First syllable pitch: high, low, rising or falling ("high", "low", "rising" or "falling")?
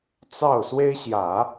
falling